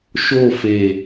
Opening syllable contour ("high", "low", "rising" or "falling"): falling